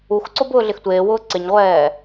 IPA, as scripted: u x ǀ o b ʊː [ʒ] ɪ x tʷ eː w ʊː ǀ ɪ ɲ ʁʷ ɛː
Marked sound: incorrect: ɮ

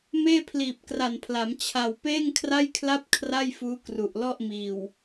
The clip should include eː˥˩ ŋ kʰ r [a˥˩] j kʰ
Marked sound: correct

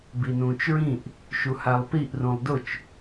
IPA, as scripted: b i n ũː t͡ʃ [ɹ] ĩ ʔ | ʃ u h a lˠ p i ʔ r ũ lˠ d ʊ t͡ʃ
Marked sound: correct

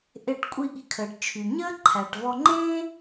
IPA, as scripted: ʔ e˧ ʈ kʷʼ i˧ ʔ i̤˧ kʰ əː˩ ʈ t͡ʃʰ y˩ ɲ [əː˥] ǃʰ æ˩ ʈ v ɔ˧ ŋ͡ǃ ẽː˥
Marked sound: correct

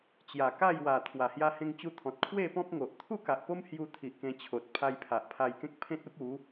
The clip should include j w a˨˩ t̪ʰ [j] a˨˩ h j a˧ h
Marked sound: incorrect: w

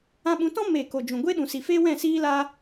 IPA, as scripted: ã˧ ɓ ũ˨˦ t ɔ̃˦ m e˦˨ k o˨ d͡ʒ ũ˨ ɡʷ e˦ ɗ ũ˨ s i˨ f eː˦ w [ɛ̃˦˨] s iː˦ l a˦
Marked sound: correct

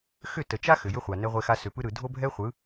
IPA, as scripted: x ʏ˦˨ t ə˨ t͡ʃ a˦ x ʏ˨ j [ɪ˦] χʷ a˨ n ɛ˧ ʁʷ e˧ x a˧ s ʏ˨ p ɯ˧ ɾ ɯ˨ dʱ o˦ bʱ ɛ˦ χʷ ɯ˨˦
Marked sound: incorrect: ʏ˦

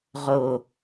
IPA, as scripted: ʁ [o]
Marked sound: correct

